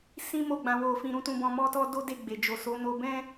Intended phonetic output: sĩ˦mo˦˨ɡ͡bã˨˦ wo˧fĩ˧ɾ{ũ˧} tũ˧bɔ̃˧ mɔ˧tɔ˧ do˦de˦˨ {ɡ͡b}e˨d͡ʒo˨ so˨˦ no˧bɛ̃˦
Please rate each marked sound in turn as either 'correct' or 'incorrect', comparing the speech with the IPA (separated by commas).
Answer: incorrect, correct